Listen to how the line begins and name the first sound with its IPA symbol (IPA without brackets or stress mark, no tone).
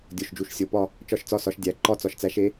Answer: dʲ